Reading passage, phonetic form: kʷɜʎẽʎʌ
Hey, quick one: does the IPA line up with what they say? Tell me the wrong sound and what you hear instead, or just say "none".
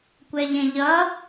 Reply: ɜ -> ɛ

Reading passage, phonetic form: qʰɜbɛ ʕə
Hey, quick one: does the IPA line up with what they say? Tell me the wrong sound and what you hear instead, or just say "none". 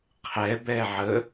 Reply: ɜ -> ɛ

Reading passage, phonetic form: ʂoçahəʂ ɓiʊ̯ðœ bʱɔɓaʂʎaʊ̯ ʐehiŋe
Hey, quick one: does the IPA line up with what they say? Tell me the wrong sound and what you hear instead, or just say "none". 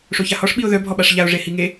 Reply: ə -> ɔ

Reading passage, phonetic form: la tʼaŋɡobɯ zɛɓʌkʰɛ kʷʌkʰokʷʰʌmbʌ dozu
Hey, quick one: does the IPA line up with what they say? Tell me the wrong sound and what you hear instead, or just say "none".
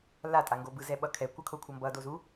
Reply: none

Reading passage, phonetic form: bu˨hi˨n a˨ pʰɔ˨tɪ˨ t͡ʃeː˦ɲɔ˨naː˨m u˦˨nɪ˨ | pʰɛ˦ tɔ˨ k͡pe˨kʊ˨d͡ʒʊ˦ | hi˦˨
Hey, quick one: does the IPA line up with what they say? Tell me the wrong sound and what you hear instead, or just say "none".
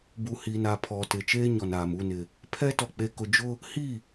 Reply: none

